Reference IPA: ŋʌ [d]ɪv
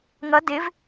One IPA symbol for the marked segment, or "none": d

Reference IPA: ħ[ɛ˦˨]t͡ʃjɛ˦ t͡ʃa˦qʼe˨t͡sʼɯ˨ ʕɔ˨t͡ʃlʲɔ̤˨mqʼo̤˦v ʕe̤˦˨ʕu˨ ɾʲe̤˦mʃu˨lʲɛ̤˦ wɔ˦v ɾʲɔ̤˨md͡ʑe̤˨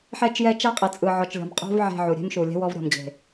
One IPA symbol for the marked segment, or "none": ɛ˦˨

